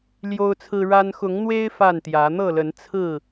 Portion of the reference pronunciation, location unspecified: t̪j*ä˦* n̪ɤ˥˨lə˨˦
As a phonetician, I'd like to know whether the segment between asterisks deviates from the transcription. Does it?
yes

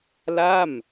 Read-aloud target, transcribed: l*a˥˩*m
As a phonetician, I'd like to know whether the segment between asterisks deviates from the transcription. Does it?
no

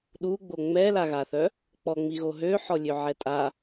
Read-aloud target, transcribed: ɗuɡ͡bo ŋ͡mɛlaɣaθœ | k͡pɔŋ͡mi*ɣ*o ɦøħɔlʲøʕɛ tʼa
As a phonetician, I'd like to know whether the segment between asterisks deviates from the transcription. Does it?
no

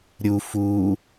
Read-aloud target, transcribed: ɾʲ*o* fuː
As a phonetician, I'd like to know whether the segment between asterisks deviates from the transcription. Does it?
yes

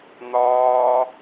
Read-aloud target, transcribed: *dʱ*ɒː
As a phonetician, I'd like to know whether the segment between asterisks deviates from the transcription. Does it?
yes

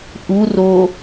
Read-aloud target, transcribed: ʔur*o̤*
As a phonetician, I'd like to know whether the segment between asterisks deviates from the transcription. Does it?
yes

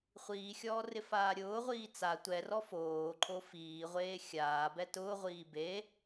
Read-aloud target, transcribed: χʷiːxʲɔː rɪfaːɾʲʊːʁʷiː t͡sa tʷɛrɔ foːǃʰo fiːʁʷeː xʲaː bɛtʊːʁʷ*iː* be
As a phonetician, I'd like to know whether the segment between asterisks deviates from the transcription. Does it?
no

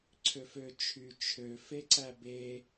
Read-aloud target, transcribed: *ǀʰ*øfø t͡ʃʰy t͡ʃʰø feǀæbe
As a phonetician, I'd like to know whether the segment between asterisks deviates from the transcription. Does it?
no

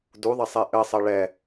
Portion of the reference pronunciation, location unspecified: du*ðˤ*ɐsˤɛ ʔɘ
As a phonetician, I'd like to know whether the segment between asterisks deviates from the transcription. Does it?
no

